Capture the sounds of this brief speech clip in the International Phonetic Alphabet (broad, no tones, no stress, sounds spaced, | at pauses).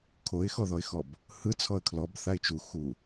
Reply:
kʰ o ɪ̯ x ɔ ð ɔ ɪ̯ x ɔ b | h ɯ t͡sʰ ɔ ə̯ kʰ l ɔ b θ a ɪ̯ t͡ʃ u x u